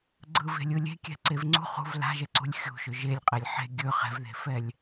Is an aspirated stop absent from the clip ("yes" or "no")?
yes